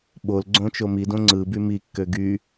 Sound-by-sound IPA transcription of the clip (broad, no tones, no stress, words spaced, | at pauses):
ɓol ɡ͡ǀõt͡ʃomidõ ŋ͡ǀɯ bymikːø ɡy